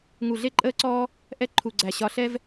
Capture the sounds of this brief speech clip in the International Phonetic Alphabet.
ŋ u˧˩ ɮ e˥ ǃʼ əː˥ ǀ ɔː˥ | ʔ ɛ˥ ǃʰ u˧˩ ɡ͡ǀ æ˧˩ ɕ ɒ˧˩ ɬ ɛ˥ v

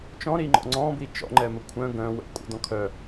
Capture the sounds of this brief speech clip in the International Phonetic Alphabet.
t͡ʃ ɔ̃ ɾ i ŋ͡ǃ ɔ̰ ŋ͡ǀ ɔ̃ b i t͡ʃ ɔ̰ ŋ͡ǃ ɛ m ə kʷʰ œ̃ ɡ œ̃ w ə̰ kʷʼ ə̰ d ɔ̃ kʰ œ

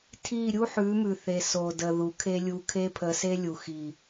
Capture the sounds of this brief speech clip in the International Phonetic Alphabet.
tʰ i˦˨ ɾʲ u˦ ħ ʉ˨˦ m ʉ˨ θ e˨ s o˨ d ə˨ ð u˨ kʰ e˦ lʲ u˧ kʰ e˦ pʰ ə˧ s e˦ lʲ u˨ x i˨

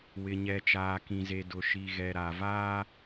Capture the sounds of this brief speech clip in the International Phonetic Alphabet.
w ɪ˨ ɲ ɛ˨ t͡ʃ aː˨ k ĩ˨ z e˨ d ʊ˨ ʃ i˨ ɣ ɛ˨ ɾ a˨ v aː˦

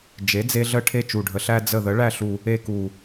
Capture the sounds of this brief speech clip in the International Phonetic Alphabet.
d͡ʒ e˨˥ d͡z e˦ ɮ ə˦ ʈʰ e˦˨ t͡ʃ u˨˩ ɖʱ ə˨˩ ɬ æ˦ d͡z ə˦˨ ð ə˨˥ ɭ æ˦˨ ɬ u˨˩ | e˦ k u˨˩

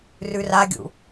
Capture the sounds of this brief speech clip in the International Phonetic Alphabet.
r ʉ r a ɡʲ ṵ

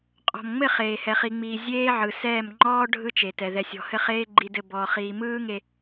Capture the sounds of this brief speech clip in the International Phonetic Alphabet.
qʼ ɔ̤˨ m ŋ͡m ɘ˦˨ χ eː˨ h ɛ˨ χ i˨ ŋ͡m iː˨ zʲ eː˦ ʕ ɯ˨ s ɛː˦˨ m ŋ͡ǃ ɔː˦ ɖʱ ɯ˦ t͡ʃ e˨ t ɛ˨ ð ɛ˨ sʲ ɔ̤˨ h ɘ˦˨ χ eː˦ ɡ͡ǃ i˦ d ɘ˦ b ɔː˨ χ iː˨ m ɯː˦ ŋ e˨

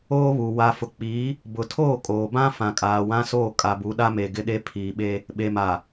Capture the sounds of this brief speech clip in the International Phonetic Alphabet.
oː˦ β u˨ w a˨ f ʊ˨ k͡p iː˨˦ | b ʊ˨ tʰ oː˦˨ kʼ oː˨ b ã˦ f ã˨ kʼ aː˨ w ã˦ s oː˦˨ kʼ a˨ b u˨˦ ɗ a˦ m e˨ ɡ ɪ˦ ɗ e˦ pʰ iː˨ ɓ e˦ | ɓ e˨ m a˨

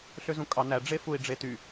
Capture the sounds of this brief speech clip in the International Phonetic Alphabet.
ɬ ø z ũ kʼ ɑ n æ ɖ͡ʐ e f u i̯ ɖ͡ʐ e t y

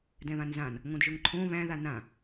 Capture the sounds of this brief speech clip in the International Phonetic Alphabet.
d ɛ̃ β ã n z ã n | ŋ õ d ʒ ʊ ŋ ǃʰ õ β æ̃ ð a n ã

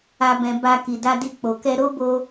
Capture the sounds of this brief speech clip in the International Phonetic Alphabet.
a˨ b ɛ̃˨ b a˧ k i˨ d a˧ d i˧ k͡p o˨ k ɛ˧ ɾ o˦ b o˧

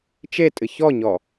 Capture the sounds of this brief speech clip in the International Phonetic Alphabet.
t͡ʃ e tʼ ɨ ç ɔ ɲ ɔ

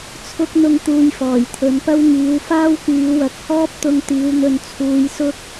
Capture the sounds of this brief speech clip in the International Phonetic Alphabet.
t͡sʰ ʊ˥ k̚ n̪ ʊ˥ ŋ t̪ uː˧ j f ɔː˨˩ j t̪ʰ ɵ˨˥ n p ɐ˥ w ŋ iː˨˧ w f aː˥ w k yː˨˧ w ɐ˨˥ k̚ h ɔː˥ p̚ t̪ ʊ˧ ŋ t̪ iː˨˧ w n̪ ɵ˨ n t͡sʰ uː˨˧ j s ʊ˥ k̚

